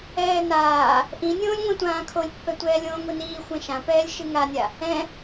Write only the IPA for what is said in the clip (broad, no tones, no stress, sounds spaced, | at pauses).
ɛː n aː | ʔ ĩ nʲ õː lʲ ŋʷ ɛ̃ tʷ ãː kʰ o lʲ pː ɛ tʷ ɛː lʲ õː ŋʷ i n iː xʷ ɛ̃ ʃ ã p ɛː lʲ ʃ ɨ ŋ a nʲ a | ɛ̃